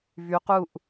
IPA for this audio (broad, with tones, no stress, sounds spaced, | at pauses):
v y˩˧ q u˧˩ ʔ